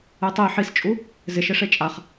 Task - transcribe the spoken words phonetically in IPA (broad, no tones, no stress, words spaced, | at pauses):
ɛtˤe ħist͡ʃʼu | zɪʃɪ ʂet͡ʃʼaχ